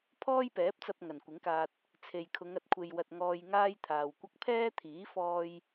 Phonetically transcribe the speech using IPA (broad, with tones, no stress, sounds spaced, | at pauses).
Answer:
pʰ ɔː˥ j p ɛː˨˥ p̚ t͡s ɐ˧ p̚ ŋ ɐ˨˩ n kʷ ɪ˨˥ ŋ k aː˧ t̚ | t͡sʰ e˨ j kʰ ʊ˨˧ ŋ ɐ˨ t̚ kʷʰ e˧ j w ɐ˧ t̚ ŋ ɔː˧ j ŋ aː˥ j t̪ʰ aː˨ w kʷ ɐ˥ k̚ pʰ ɛː˥ t̪ʰ iː˨˥ f ɔː˧ j